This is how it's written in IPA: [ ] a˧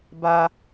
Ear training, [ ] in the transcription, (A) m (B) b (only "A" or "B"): B